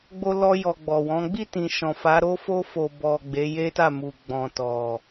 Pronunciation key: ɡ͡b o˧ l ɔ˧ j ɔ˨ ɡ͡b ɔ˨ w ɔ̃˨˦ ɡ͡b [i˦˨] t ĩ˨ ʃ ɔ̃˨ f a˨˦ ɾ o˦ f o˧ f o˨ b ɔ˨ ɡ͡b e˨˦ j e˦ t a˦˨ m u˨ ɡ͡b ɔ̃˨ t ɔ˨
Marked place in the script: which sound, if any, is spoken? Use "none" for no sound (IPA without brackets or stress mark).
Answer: i˦˨